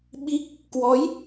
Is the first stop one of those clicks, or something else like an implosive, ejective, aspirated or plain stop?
implosive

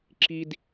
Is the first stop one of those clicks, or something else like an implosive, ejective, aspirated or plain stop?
click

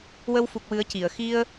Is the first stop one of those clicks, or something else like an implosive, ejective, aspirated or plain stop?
plain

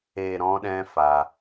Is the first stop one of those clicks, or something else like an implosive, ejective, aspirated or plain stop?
implosive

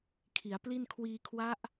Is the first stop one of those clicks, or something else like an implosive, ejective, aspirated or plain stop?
aspirated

